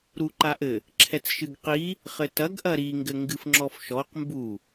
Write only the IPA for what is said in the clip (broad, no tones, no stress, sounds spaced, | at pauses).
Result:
ɾ u ǃ a ʔ ɘ | ǁʰ ɛ t͡s ʃ ɨ ɡ q i | χ ɘ t ɐ ɡ ʔ ɐ ɾ i ŋ ɡ ɘ ŋ ɡ ɨ f ŋ͡ǁ ɔ f ʃ ɔ q m b u